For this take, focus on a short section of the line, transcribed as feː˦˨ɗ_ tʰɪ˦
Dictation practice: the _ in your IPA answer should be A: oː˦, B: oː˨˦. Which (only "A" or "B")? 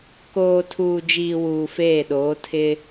B